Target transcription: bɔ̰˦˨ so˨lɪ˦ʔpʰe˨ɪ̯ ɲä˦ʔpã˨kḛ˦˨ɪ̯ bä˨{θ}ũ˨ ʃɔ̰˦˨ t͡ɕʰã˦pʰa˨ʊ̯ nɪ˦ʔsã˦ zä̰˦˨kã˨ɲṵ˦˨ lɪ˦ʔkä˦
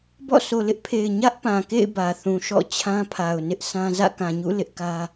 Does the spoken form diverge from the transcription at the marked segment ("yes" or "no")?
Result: no